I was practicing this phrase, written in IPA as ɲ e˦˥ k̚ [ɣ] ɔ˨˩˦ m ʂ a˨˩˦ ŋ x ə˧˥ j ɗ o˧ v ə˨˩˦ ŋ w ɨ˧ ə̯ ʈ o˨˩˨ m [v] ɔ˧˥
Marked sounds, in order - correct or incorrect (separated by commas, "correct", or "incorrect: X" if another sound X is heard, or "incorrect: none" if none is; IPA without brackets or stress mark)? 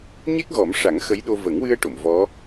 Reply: correct, correct